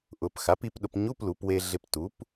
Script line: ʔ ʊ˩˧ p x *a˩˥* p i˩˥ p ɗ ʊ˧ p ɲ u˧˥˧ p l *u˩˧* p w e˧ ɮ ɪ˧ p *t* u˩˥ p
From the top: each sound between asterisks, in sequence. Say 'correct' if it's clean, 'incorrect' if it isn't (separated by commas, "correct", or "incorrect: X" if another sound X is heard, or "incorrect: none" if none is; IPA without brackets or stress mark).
correct, correct, correct